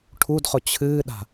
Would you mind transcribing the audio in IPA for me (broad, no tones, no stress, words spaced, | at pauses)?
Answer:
ʈʰudχʊ t͡ɕʰɨːɗa̤